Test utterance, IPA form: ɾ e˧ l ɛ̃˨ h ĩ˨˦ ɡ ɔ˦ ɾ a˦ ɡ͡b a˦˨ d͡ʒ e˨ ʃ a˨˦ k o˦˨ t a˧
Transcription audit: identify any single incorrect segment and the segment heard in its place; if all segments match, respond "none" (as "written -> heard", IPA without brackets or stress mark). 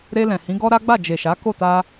none